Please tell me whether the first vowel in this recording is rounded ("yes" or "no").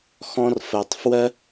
yes